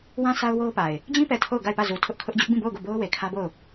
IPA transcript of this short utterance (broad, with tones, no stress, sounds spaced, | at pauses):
w ã˦ s a˦ ʊ̯ w o˦ ʊ̯ p a˨ ɪ̯ | d͡ʑ ĩ˦ p ɛ˨ tʰ o˦˨ ʊ̯ ɡ a˦˨ ɪ̯ p ä˦˨ z u˨ tʰ ʊ˦ ʔ kʰ ʊ˦ ʔ d͡ʑ ʊ˦ ʔ b ĩ˦˨ b o˦˨ ʊ̯ ɡ o˦˨ b o˦ ʊ̯ w e˨ kʰ ä˦ b o˦˨ ʊ̯